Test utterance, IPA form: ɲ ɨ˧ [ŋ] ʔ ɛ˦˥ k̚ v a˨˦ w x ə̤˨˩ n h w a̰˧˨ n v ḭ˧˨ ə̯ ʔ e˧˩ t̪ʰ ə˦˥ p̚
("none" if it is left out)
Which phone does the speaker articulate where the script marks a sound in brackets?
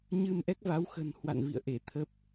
m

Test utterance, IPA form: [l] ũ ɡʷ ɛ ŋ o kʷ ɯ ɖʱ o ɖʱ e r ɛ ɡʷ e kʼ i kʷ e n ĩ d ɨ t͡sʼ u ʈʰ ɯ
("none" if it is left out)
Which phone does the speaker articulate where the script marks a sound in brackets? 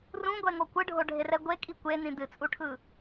r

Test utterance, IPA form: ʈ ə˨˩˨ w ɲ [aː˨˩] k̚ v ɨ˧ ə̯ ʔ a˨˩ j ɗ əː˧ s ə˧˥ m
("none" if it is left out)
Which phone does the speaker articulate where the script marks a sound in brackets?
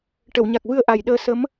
a˨˩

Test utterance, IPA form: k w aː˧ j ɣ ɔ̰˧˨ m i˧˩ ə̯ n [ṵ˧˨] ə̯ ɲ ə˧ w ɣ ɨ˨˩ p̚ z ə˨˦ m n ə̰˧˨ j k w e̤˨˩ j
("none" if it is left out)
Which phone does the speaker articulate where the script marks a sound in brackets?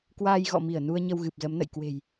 u˧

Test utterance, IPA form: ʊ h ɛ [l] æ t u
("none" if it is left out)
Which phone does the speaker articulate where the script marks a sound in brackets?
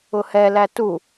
l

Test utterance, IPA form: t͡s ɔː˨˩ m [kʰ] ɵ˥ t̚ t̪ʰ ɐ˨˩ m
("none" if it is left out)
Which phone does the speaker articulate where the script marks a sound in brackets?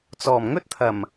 ŋ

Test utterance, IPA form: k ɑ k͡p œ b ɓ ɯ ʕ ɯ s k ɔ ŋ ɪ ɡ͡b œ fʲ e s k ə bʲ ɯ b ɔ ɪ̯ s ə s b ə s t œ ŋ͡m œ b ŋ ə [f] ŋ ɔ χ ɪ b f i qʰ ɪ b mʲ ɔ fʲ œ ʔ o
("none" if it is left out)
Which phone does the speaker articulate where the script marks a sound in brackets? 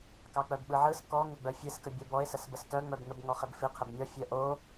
b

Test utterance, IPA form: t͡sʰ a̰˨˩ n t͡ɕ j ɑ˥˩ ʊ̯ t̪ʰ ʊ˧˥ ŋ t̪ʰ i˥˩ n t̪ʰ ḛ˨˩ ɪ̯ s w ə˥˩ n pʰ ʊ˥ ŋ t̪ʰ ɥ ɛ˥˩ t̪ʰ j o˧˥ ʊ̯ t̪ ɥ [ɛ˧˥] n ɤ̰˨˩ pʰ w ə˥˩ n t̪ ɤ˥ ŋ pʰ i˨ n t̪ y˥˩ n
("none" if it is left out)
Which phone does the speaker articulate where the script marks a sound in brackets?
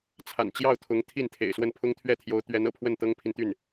ɛ˧˥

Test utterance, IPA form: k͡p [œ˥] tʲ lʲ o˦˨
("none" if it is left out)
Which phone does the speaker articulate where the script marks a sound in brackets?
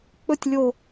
ɵ˥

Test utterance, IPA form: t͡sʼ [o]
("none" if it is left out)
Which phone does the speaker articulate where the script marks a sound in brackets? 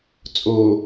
o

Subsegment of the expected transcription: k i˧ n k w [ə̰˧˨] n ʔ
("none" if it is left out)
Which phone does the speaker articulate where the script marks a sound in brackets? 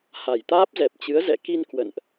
ə̰˧˨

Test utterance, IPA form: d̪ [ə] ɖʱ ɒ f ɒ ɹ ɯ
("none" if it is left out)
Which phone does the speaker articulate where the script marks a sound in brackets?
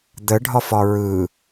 ə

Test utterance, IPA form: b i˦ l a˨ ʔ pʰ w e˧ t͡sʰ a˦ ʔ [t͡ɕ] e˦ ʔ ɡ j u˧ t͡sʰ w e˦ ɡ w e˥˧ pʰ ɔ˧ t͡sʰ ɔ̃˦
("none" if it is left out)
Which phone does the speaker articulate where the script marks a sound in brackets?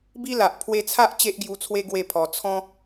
t͡ɕ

